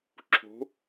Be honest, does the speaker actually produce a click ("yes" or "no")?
yes